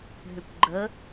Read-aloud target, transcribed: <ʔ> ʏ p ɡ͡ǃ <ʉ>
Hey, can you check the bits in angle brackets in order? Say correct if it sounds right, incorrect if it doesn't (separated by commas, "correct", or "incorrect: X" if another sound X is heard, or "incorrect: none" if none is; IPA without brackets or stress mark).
incorrect: ɦ, incorrect: ə